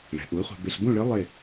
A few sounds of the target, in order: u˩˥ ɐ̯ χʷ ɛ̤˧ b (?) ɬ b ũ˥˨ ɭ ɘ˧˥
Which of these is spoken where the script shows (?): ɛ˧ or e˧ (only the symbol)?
e˧